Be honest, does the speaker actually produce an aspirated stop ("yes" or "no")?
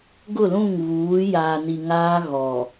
no